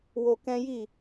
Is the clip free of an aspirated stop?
yes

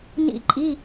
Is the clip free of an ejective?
no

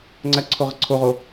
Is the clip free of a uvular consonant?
no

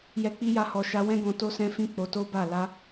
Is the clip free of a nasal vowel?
no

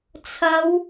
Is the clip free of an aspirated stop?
no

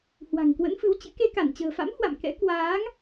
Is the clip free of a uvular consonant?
yes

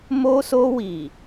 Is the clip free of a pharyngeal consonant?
yes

